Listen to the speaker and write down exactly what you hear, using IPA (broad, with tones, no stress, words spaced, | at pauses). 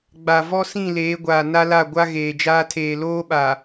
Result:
ɡ͡ba˨ vɔ˦sĩ˦˨leː˨˦ ɡʷaː˨na˦la˦˨ɡʷa˦ ɣeː˨d͡ʒaː˦tʰeː˨ loː˦ɓa˨